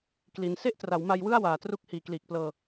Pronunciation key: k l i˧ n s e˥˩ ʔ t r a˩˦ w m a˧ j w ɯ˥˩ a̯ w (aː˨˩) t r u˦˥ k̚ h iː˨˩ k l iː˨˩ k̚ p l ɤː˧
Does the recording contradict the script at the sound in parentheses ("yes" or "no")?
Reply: no